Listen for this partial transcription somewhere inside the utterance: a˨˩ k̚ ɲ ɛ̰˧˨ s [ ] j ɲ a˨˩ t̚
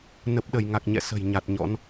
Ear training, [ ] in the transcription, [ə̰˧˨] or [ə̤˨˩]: ə̤˨˩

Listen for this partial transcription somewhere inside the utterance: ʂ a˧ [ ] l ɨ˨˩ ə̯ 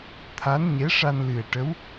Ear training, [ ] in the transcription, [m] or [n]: n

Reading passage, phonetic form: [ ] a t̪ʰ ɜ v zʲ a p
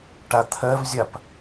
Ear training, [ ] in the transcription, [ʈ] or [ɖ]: ʈ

